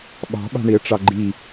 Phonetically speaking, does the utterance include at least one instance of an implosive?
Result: yes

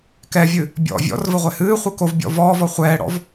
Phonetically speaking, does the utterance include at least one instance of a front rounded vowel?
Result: no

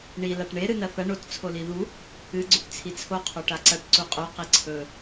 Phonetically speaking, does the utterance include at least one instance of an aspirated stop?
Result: yes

